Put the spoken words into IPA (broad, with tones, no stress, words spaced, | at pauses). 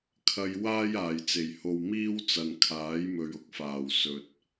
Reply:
kʰɐ˨j waː˥jaː˨˩jt͡se˨˩j ho˨wmiː˥w t͡sɐ˨nkʰaː˨˥jmɵ˨ɥʊ˨˥k̚ faː˨˩w sɵ˨t̚